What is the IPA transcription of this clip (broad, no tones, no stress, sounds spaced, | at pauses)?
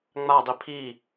ŋ͡m a dˤ i pʰ i